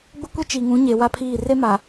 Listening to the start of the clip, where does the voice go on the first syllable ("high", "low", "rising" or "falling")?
high